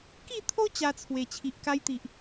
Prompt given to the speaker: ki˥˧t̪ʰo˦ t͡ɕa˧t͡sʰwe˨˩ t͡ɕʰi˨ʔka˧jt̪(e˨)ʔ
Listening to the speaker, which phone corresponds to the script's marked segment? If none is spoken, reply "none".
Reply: i˨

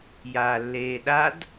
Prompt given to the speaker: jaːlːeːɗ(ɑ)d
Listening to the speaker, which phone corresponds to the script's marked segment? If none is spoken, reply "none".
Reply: a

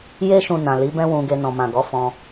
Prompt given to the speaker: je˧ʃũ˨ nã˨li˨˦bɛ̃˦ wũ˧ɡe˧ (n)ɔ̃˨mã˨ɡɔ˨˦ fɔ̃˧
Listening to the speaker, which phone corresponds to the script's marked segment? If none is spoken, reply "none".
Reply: n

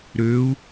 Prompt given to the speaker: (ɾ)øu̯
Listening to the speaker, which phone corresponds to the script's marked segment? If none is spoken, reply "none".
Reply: ɾ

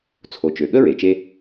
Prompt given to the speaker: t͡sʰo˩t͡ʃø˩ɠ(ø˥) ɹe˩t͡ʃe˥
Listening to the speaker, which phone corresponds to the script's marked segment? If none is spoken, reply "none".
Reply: ə˥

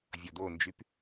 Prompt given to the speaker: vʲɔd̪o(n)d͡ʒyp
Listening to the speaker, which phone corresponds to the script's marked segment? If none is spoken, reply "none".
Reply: n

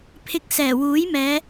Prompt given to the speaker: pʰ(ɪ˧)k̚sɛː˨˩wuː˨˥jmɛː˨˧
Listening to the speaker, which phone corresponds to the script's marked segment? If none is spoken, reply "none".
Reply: ɪ˧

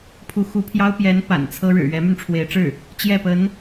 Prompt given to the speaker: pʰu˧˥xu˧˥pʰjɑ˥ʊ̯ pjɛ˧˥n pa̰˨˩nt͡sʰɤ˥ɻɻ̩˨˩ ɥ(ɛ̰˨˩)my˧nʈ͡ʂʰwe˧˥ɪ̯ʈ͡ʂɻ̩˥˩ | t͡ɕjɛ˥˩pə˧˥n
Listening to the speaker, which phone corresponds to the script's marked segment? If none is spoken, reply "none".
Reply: ɛ˧˥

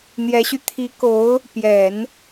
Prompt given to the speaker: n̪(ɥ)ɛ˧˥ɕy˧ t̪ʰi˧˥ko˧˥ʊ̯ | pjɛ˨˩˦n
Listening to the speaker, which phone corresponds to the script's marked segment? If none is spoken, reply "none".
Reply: j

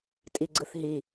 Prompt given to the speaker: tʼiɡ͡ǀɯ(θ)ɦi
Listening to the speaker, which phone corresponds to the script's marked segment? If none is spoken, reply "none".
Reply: θ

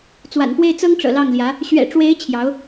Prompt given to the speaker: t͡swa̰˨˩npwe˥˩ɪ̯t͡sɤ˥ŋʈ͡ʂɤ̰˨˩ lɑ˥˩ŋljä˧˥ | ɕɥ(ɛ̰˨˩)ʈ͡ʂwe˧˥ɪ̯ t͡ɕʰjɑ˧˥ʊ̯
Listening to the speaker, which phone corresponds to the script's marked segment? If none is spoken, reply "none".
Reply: ɛ̰˨˩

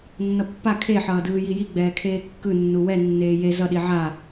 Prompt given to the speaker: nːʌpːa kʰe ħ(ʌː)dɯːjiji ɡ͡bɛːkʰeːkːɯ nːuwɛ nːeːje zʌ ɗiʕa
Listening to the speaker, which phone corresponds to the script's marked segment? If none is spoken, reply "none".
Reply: ʌː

